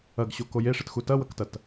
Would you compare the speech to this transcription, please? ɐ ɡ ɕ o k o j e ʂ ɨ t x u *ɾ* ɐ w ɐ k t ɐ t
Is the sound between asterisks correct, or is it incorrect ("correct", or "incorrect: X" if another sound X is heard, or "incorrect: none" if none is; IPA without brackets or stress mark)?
incorrect: t